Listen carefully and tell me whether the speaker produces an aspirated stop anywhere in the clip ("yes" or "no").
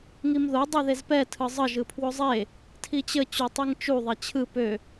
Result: yes